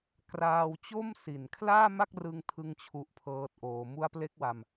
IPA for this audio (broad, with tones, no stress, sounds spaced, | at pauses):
k r aː˧ w t͡ɕ o˥˩ m s i˨˩ n kʰ l aː˥˩ m a˥˩ k̚ r ɯ˧ ŋ tʰ ɯ˥˩ ŋ t͡ɕʰ u˦˥ ʔ pʰ ɤː˦˥ t̚ ʔ oː˧ m u˦˥ a̯ p l e˦˥ k̚ w a˧ m